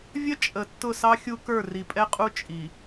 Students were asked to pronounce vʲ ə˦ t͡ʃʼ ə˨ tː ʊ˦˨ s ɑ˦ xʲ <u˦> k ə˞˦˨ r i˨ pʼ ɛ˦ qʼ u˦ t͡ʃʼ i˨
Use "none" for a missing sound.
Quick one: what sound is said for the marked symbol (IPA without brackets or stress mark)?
u˦